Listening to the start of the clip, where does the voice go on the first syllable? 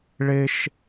high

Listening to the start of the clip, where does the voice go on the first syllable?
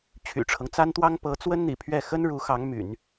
low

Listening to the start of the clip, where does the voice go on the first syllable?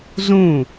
falling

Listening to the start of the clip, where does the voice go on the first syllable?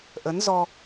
rising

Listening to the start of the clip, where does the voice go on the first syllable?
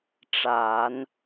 low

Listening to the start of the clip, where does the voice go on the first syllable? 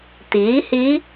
rising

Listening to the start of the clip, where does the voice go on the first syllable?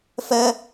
high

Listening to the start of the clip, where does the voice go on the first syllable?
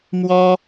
high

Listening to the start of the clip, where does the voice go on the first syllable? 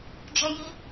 high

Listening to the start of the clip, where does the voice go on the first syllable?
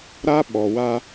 high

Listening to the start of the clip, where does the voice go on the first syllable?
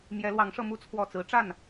rising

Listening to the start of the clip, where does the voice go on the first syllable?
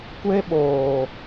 high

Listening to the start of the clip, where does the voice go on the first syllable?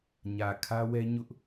low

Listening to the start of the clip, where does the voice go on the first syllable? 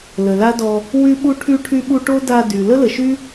low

